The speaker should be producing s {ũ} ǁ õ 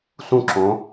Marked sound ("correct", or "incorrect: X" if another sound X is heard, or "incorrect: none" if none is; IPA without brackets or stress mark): correct